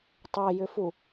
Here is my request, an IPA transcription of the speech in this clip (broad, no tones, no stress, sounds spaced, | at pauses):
tˤ e j ʏ f u